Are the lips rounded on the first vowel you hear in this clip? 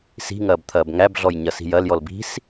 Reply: no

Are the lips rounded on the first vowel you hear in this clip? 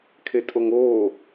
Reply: no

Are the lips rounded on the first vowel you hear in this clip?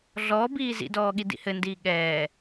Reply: yes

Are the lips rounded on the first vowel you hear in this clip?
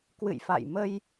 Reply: no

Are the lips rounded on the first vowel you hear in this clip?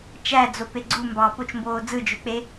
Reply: no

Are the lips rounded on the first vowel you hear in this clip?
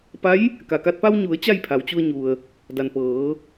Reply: no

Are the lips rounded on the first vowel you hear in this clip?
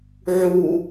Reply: yes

